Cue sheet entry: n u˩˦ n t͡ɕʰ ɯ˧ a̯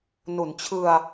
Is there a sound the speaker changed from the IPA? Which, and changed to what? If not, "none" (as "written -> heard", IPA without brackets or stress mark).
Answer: none